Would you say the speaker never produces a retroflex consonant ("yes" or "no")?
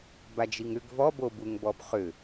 yes